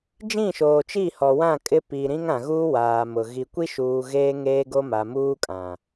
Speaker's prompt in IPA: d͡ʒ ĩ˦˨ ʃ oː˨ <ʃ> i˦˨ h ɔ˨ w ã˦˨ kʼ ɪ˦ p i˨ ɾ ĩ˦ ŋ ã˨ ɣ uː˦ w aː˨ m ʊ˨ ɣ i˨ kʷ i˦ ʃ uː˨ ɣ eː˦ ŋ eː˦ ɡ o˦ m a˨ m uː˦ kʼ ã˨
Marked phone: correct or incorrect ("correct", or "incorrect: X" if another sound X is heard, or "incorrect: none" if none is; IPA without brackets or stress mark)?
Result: incorrect: t͡ʃ